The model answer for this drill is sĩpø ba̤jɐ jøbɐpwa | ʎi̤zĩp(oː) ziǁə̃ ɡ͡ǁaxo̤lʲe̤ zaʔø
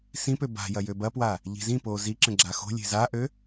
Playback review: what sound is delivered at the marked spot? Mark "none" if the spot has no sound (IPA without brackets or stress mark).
oː